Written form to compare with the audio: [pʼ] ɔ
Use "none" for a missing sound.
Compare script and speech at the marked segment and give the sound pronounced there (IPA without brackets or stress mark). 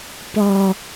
p